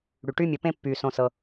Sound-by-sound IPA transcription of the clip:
ɽ y˨ ʈ y˦ mʲ ɵ˧ p ẽ˦ pː yː˨ s õ˧ s ɤ˧

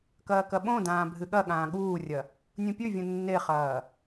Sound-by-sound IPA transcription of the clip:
k ɐː k ɐ ɓ õ d ãː bʱ ɨ ɠ ɐ ɠ ãː ɠ uː rʲ ɐ | nʲ ũ pʲ ʉ vʲ ũ nː e χ ɐː

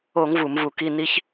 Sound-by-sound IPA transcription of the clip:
o˧˩˧ ŋ v u˧˩˧ m v u˧˩˧ k i˧˥˧ n i˦˥ ç

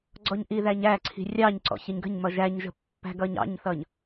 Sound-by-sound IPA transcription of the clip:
ɡ͡ǀ ɔ ɲ ʔ i ð æ ɲ æ ǀʰ i̤ rʲ ɑ ɲ ǀ ɔ̰ ç ɪ ɲ ɡ ə̤ ɲ m ʌ ʒ æ ɲ ʒ ə̤ pː æ̤ ɡ ʌ ɲ ɑ̰ ɲ θ ʌ ɲ

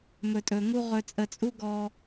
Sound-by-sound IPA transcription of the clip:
m ɵ˨ tʼ ɵ˨ ŋ u˧ ʁ ɵ˨ t͡sʼ ə˨ t͡sʼ u˧ ɡ ɔ˧

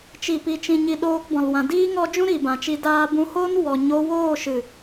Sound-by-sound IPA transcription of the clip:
t͡ʃ i˨ p i˨ t͡ʃ ĩ˨ ɲ i˧ ɗ oː˧ k b ɔ̃˨ l w ã˨ d iː˦ ŋ ɔ˦ d͡ʒ ũ˦ ɾ i˨ b ã˨ t͡ʃ i˧ d aː˧ b ũ˧ h o˦ n w ɔ˨ ɲ o˧ w oː˦˨ ʃ ɨ˨

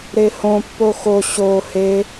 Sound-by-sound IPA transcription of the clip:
ɾ e h õ pː o x o ɕ o h e

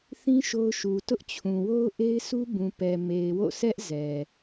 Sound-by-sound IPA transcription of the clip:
θ ĩ˦ ʃ o˦ ʊ̯ ʃ u˨ t ʊ˦ ʔ t͡ɕʰ ũ˨ w o˦ ʊ̯ ʔ e˦ ɪ̯ sʰ u˦ b ũ˨ p ɛ˨ m e˨ ɪ̯ w o̰˦˨ s ɛ˦ ʔ z ɛ˨

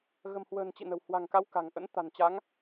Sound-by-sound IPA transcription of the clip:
ɣ ə̤˨˩ m h w ə̤ː˨˩ n t͡ɕ ḭ˧˨ n ə̤˨˩ w h w a̤˨˩ ŋ k a˨˦ w k a̤˨˩ ŋ ʔ ə̰˧˥ n t̪ a̤˨˩ n t͡ɕ a˨˦ ŋ

